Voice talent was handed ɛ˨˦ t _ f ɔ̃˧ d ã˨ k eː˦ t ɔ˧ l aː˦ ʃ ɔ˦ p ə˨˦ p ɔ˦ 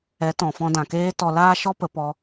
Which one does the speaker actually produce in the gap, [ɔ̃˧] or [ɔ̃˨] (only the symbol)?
ɔ̃˨